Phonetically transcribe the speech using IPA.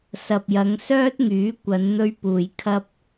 s ɐ˨ p̚ j ɐ˨˧ ŋ s œː˥ t̚ ŋ yː˨˥ kʷ ɐ˨˧ n n̪ ɵ˧ ɥ p uː˨ j kʰ ɐ˧ p̚

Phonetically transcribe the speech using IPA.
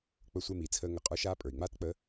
k͡p ə˧˥ sʷ e˧ m iː˩ t͡sʰ əː˧ ŋ ə˩ qʼ ə˞˧˥ ʃ aː˧˥ pʼ ə˞˩ i̯ ŋ͡m aː˥ t k͡p ə˧˥

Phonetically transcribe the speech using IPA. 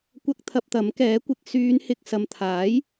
kʷ ɐ˥ k̚ t̪ʰ ɐ˧ p̚ t̪ ɐ˨˥ m k ɛː˨˥ kʷ ɪ˨˥ k̚ s yː˨˧ n h ɪ˨ k̚ s ɐ˨ m t̪ʰ aː˨˥ j

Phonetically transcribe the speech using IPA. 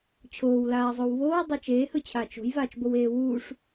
t͡ɕʰ oː w l aː zˤ o w β oː w dˤ e t͡ʃ eː h ɯ t͡ɕʰ aː t͡ʃ o̤ j v aː t͡ʃ b o w eː w uː ʂ

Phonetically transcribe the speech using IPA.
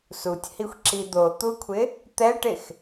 s u tʲ h i xʷ ǁ i d̪ o t̪ u kʷʰ ɪ | t̪ ɛ ʈ ɪ x

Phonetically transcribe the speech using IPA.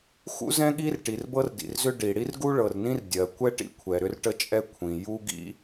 x ṵ˥ z ɛ̃˥ ɠ i˥ r ʈ i˩ r b ɤ˥ r d ḭ˩ r z ʏ˥ ɖ i˩ ɽ i˥ r ɡ u˥ ɭ ɤ˩ r n ĩ˥ r dʲ ɜ˩ kʷ ɛ˥ ʈ ḭ˥ kʷʰ ɛ˩ ɾ ʏ˥ r ʈ ə˥ t͡ʃʼ ɛ˥ kʷʰ ĩ˩ j u˥ ɡ ḭ˥

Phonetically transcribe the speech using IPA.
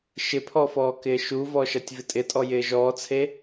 ʃ ɪ pʰ ɔ f ɔː k ɪː ʃ u v ɔ ʃ ɐ tʲ v ɪ tʼ ɪ tʼ ɔ j ɪː ʒ ɔː t͡sʰ e

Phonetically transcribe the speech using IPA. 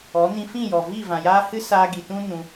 ɔ˨˦ n ĩ˧ f ĩ˦˨ j ɔ˨ v i˦˨ v ã˨ j aː˦ h ɨ˦ s aː˧ ɡ i˨ t ũ˦ n ũ˧

